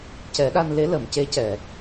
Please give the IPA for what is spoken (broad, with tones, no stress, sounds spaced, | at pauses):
c ɛ˨˩˦ ɗ a˧ n l e˧˥ l ə˨˩˨ m c e˧˥ c ɛ˨˩˨